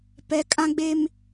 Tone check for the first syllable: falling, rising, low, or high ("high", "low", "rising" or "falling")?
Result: low